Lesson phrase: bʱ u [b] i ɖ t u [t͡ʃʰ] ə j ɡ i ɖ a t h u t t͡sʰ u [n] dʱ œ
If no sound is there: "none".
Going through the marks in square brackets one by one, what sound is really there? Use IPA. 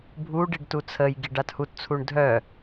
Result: ɖ, t͡sʰ, ɳ

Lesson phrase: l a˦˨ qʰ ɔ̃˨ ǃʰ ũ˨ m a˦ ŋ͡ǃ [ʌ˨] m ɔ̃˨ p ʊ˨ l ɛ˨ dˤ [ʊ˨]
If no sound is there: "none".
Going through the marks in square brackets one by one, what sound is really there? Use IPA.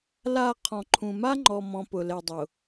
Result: ɔ˨, ʊ˨

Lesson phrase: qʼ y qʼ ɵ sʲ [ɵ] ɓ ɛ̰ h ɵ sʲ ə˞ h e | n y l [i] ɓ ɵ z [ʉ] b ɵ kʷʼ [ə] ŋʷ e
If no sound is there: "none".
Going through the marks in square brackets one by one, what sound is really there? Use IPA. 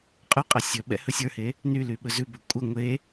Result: ɵ, y, ʉ, ə

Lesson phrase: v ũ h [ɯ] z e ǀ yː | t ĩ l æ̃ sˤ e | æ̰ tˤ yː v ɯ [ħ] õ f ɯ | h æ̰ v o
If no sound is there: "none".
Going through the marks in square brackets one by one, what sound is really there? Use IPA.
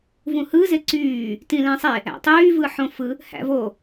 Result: ɯ, ħ

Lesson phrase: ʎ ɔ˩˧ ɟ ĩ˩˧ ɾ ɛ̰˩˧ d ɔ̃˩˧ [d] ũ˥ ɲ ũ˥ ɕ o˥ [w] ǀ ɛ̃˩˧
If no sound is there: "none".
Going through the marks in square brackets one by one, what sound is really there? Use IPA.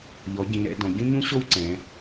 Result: ɟ, w

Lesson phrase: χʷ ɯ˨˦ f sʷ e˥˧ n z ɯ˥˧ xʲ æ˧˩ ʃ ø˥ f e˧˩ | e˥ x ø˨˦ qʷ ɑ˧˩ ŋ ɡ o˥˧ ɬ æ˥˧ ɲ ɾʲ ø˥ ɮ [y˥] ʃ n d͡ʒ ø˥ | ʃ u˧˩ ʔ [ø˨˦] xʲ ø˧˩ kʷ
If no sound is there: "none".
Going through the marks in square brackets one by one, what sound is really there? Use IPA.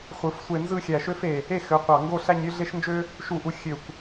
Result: e˥, u˨˦

